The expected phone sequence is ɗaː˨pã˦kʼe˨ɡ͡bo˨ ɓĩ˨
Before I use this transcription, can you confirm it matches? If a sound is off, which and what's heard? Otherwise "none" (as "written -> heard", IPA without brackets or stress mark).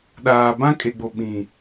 p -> b